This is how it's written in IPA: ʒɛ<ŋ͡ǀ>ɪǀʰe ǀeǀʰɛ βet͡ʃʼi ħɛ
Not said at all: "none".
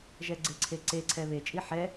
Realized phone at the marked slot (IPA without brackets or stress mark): ɡ͡ǀ